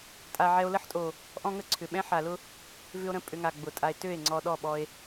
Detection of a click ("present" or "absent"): present